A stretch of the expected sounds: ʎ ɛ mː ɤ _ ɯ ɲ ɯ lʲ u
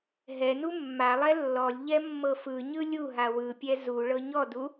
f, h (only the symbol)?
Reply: f